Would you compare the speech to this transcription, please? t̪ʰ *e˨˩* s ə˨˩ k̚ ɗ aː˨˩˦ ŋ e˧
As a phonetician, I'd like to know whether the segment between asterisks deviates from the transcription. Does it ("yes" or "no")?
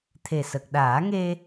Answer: no